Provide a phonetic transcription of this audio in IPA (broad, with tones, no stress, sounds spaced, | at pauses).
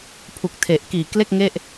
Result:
pʰ u˨˩ k̚ tʰ e˨˩ ʔ k iː˨˩ k l e˥˩ k̚ ŋ e˥˩ ʔ